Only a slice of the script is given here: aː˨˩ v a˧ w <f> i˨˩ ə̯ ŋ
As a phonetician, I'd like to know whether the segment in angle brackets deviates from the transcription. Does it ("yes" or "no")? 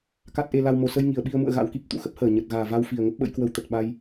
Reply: no